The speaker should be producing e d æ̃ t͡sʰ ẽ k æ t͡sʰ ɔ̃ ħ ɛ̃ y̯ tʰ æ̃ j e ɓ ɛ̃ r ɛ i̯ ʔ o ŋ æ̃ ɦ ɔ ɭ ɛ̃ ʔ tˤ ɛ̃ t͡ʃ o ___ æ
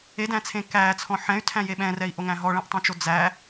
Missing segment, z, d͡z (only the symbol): d͡z